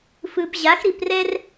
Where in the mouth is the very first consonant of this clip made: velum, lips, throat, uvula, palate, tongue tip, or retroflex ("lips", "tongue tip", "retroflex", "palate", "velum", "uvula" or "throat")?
lips